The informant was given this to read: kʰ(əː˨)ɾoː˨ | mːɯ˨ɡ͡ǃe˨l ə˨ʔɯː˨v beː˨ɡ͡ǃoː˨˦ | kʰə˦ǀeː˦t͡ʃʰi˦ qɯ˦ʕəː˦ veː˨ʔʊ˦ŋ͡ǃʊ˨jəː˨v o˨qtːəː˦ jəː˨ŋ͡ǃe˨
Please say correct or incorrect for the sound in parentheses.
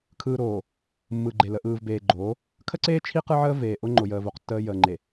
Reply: incorrect: ɯː˨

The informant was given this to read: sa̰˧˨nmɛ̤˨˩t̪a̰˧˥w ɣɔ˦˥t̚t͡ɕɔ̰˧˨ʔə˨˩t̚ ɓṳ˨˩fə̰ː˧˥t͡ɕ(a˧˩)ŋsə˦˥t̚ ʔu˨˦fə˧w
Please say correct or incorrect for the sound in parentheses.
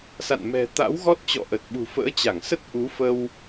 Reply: correct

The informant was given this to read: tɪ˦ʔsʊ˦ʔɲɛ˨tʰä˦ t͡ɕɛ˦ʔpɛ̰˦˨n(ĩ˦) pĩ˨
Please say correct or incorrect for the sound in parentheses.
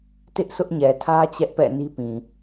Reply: incorrect: i˦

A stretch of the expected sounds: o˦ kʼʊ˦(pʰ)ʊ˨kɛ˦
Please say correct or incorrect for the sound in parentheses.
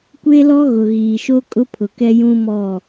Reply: correct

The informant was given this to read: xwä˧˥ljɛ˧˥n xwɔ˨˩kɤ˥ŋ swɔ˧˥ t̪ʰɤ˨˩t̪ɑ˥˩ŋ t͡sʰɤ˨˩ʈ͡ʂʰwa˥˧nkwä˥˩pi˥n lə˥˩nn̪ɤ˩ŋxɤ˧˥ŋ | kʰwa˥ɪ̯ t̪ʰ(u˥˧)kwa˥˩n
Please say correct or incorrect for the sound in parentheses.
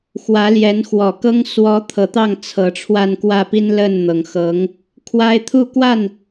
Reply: correct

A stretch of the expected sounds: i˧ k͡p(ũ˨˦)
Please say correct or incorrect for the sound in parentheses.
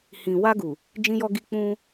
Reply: incorrect: ũ˧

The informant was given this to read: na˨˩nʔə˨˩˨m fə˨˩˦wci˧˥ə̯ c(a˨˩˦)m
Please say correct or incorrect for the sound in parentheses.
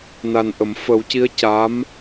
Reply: incorrect: a˧˥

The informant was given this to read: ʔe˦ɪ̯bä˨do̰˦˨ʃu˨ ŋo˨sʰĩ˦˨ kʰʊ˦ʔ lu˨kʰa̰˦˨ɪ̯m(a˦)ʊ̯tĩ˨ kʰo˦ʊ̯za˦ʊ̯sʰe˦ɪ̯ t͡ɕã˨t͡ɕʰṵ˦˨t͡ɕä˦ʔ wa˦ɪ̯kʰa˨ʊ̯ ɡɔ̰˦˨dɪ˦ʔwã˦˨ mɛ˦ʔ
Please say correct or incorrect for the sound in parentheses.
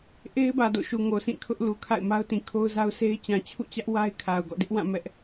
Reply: correct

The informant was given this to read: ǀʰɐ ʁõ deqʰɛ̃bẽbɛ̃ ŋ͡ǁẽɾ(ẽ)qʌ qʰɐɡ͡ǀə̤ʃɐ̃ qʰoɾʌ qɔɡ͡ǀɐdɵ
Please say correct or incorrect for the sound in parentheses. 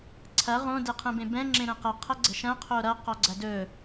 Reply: incorrect: ɛ̃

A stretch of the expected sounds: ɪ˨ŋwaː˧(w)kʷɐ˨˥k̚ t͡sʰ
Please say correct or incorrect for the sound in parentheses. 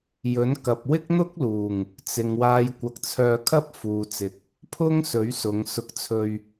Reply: incorrect: j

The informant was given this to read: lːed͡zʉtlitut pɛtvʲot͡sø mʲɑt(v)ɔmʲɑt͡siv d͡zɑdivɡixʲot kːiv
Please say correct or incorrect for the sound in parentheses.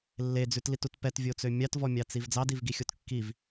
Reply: correct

